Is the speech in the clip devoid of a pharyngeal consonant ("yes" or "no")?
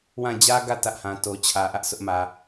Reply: yes